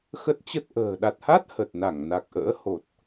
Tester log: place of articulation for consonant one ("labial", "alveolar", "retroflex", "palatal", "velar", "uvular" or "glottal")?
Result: velar